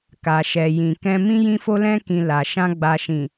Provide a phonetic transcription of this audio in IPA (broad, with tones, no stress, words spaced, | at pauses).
ka˨ʃɛ˨ jĩ˨kɛ̃˧mĩ˦ jĩ˧fo˧lɛ̃˧kĩ˨ la˨ʃã˧ ɡ͡ba˨ʃĩ˨